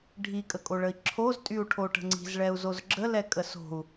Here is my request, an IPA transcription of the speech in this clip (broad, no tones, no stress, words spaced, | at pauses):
ɖʱikʼəkʼoɭəi̯ ǁʰoztʼyu̯ʈʰoʈə̤ ŋ͡ǀi̤zɭɛu̯zoz ɡ͡ǁəlɛkʼə so̤u̯